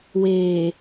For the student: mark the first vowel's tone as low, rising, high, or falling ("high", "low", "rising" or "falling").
low